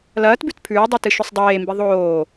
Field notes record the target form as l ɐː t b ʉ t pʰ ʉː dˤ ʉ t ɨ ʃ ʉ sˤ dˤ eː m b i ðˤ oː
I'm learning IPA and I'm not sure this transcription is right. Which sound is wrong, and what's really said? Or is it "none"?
none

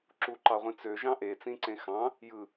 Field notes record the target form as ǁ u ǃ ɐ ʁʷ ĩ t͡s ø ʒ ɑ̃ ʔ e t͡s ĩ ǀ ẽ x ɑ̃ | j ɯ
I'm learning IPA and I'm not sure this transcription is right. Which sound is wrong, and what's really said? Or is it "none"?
ɐ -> ɑ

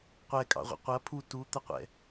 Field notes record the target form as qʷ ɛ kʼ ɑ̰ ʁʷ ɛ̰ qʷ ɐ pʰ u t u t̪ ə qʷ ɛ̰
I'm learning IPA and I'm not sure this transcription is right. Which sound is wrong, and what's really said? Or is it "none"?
none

